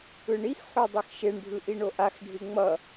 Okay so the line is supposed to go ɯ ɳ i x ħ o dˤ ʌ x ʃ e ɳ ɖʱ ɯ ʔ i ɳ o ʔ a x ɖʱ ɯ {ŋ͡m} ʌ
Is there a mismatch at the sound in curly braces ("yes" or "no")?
no